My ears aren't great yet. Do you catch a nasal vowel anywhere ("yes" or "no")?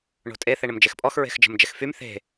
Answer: no